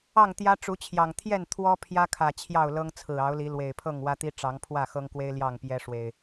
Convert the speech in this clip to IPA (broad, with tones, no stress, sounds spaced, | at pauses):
ɑ˥˨ ŋ t̪ j ä˦ ʈ͡ʂ u˨˦ t͡ɕʰ j ɑ˨˩ ŋ t̪ʰ j ɛ˥˨ n t̪ʰ w ɔ˦ pʰ j ä˦ kʰ ä˨˩ t͡ɕʰ j ɑ˥˨ ʊ̯ l ɤ˦ ŋ t͡sʰ ɹ̩˨˩ ɑ˨˦ ʊ̯ l i˨˦ l w e˨˩ ɪ̯ pʰ ɤ˥˨ ŋ w ä˦ t̪ i˦ ʈ͡ʂ ɑ˨˦ ŋ pʰ w ä˥˨ x ɤ˦ ŋ k w e˦ ɪ̯ l j ɑ˥˨ ŋ p j ɛ˦ ʂ w e˨˩ ɪ̯